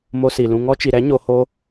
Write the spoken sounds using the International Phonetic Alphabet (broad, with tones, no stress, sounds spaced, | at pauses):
m o˧ s i˨ l ũ˧ ŋ ɔ˧ t͡ʃ i˨ ɾ ɛ˨˦ ɲ o˧ h o˦